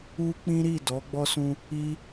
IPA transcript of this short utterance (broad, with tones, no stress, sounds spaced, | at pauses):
u˦ k͡p ĩ˦ ɾ i˦˨ d ɔ˨˦ ɡ͡b ɔ˦ s ũ˧ | i˦